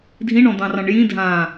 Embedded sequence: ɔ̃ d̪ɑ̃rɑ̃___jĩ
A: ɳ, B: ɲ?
A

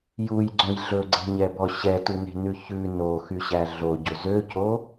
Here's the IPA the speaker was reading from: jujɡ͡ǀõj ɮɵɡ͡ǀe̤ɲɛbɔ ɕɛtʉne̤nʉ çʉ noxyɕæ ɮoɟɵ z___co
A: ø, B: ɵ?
A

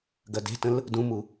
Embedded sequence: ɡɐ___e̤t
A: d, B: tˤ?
A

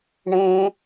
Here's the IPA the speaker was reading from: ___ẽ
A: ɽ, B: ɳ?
B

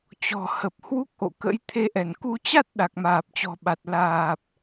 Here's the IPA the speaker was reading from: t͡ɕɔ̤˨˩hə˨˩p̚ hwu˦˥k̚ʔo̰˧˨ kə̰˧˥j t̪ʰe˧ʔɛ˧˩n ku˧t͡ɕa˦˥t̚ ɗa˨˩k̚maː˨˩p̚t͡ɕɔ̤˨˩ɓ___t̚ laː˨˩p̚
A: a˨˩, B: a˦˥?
A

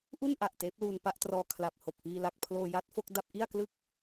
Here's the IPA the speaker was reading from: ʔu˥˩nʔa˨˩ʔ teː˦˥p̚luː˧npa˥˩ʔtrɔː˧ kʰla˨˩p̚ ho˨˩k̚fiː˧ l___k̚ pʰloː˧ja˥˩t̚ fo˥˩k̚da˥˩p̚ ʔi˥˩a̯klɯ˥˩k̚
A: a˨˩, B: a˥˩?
A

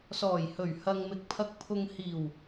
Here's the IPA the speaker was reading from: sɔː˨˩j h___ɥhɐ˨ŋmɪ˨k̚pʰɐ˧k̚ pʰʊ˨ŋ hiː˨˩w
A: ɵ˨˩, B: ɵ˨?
A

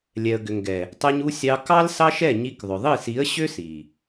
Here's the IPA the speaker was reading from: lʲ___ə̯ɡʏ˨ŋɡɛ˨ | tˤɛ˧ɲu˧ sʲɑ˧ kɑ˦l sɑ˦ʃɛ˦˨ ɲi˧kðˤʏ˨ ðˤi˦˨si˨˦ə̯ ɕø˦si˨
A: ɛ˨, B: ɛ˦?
A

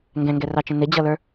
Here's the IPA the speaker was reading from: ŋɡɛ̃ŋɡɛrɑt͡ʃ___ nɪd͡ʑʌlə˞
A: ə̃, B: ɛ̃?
A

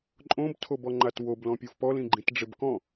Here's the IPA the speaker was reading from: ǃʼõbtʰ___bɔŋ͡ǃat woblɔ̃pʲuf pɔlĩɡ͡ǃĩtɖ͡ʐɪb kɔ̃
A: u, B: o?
B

